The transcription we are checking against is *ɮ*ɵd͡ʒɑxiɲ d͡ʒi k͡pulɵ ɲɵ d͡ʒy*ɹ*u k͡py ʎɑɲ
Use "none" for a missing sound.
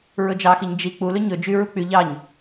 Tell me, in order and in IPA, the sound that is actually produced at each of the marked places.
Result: ɹ, ɹ

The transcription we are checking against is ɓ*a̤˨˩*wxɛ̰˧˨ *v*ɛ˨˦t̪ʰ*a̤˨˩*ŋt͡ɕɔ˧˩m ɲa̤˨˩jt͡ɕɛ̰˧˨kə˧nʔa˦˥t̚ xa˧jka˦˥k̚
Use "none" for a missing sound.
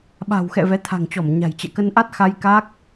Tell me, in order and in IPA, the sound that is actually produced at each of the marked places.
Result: a̤˨˩, v, a̤˨˩

